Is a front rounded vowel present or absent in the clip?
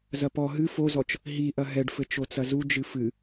absent